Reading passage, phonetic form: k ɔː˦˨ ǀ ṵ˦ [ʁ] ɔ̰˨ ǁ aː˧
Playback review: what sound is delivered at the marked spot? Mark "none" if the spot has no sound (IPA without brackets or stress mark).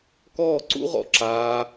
ʁ